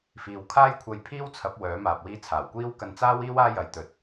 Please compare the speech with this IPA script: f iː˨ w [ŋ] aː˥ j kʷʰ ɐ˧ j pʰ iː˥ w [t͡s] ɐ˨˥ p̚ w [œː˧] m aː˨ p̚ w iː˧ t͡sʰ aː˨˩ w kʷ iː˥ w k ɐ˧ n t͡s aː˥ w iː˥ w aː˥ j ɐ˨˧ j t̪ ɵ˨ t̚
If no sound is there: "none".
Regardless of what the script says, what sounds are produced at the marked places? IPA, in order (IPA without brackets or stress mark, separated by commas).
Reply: kʰ, t͡sʰ, œː˨˥